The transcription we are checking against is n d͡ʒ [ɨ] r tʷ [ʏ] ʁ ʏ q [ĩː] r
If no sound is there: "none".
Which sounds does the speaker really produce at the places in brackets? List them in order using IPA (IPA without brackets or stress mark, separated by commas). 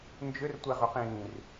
ʏ, ɛ, ĩː